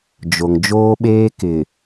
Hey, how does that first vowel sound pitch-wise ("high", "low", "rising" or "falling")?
low